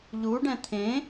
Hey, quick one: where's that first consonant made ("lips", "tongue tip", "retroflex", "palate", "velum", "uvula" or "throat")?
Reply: palate